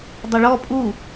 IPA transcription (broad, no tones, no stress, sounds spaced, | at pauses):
dˤ ɐ ɭ ɔ pʼ u